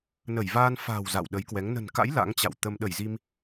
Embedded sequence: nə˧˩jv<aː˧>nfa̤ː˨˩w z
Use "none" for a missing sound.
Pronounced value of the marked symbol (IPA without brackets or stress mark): aː˧